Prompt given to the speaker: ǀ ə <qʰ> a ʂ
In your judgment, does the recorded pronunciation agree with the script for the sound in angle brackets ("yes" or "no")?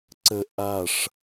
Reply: no